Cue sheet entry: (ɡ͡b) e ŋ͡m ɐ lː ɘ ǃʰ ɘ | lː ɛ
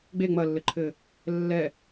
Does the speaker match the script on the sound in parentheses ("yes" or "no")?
yes